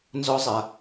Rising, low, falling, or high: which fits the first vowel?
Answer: high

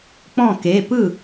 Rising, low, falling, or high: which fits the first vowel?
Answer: falling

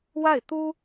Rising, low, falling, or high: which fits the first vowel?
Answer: falling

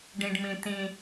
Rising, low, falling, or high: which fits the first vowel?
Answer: high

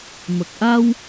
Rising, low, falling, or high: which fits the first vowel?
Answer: low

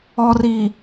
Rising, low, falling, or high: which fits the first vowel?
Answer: low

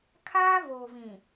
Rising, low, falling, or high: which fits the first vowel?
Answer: high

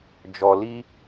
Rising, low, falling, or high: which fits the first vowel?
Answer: low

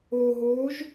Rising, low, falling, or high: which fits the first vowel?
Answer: low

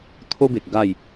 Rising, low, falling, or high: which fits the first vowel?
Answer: high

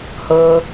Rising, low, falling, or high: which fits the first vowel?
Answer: low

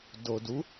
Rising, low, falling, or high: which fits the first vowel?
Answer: low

